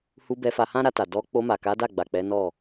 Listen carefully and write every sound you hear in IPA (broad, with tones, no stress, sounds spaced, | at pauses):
h u˧ b ɛ˧ f a˧ h ã˦ ɾ a˧ t a˨ d ɔ˧ k͡p o˧ m a˨ k a˨˦ d a˦˨ ɡ͡b a˨ k͡p ɛ˨˦ n ɔ˦˨